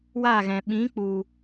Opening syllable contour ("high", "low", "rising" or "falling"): falling